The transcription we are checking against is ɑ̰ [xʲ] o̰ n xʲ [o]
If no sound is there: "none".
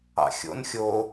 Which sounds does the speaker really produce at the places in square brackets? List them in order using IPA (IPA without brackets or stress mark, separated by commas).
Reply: xʲ, o